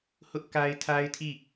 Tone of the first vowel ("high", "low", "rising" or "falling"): high